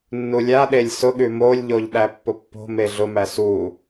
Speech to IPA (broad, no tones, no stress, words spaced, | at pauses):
nːulʲaɗelʲ sʊɠʉ molʲʎoʎ ɗæpːʊpːo̤ meɮʊmæ su